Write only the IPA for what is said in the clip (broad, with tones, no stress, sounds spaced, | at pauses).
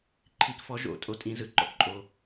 ǃʰ i˨˥ k f ɔ˨˥ ʒ o̰˨˥ tʼ o˨˥ tʼ ĩ˨˥ z ɯ˩ ǃ ɔ̰˩ k ǃʼ o˩